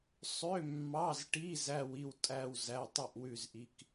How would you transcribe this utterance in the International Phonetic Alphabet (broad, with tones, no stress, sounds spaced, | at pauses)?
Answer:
sˤ ø˧˥˧ mː ɑ˧˥˧ z ʈ i˧˥˧ z æ˥˧ w i˥˧ w tʼ æ˥˧ w z æ˧˥˧ tˤ ʉ˥˧ ʔ w ʉ˥˧ z ʔ i˧˥˧ k